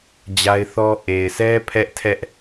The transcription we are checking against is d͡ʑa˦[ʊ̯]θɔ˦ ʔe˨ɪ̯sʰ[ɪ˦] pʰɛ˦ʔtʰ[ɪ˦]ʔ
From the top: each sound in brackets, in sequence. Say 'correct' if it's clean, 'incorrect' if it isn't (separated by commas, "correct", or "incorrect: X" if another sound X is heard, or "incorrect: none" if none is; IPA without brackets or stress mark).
incorrect: ɪ̯, incorrect: ɛ˦, incorrect: ɛ˦